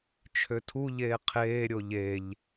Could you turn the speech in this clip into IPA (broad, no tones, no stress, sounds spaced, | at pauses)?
t͡ʃʰ ø tʰ u ʎ eː qʰ eː ɾʲ o ʎ e ʎ